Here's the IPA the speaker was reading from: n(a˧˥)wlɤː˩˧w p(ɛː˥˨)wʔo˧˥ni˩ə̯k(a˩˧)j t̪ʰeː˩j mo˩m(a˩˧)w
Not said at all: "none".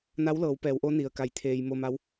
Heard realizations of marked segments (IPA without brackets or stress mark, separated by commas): a˧˥, ɛː˩˧, a˩˧, a˩˧